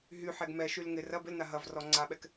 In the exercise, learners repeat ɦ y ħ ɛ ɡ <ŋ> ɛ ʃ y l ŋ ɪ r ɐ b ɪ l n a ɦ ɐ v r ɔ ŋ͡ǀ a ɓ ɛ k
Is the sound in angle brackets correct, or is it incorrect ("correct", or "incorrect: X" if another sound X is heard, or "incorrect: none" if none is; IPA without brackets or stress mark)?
incorrect: m